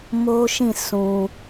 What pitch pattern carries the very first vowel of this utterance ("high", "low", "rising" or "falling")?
high